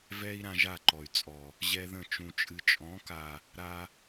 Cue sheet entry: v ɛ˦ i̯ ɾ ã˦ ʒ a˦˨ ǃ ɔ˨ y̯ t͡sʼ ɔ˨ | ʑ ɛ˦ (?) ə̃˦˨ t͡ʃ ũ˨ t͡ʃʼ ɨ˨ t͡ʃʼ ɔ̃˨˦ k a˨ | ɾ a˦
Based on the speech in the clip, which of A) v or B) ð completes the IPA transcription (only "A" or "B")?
B